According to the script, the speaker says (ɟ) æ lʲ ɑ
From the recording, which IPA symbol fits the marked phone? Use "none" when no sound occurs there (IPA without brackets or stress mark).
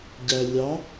ɟ